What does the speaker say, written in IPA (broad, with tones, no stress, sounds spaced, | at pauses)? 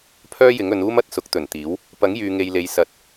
pʰ œː˥ j ɪ˨˥ ŋ ɵ˨˧ n uː˥ m ɐ˨˥ t̚ s ʊ˨˥ k̚ t̪ ɵ˨˩ n t̪ iː˨˥ w | p ɐ˨˥ ŋ j yː˨ ŋ e˨ j l e˨ j s ɐ˨˥ t̚